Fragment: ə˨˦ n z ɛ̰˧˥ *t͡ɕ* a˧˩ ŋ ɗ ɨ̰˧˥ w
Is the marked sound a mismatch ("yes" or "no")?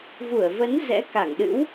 yes